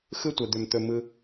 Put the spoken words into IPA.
x ɯ˦ tʷ ɛ˨ d̪ ʏ˨ m t̪ ɵ˨ m ɯ˧

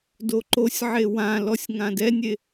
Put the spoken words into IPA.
d o ǃ o sʲ ʕ e w ã l ɔ sʲ ŋ ã d ɛ nʲ e

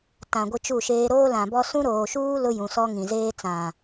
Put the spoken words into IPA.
t ã˨ ɡʷ ɪ˦ t͡ʃ u˦˨ ʃ eː˦ ɾ oː˦ l ã˨ b ɔ˦ s ũ˦ ɾ oː˨ ʃ uː˦ l ʊ˦ j ũ˨ s ɔ˦ ŋ ĩ˨ z eː˦ t͡s ã˨

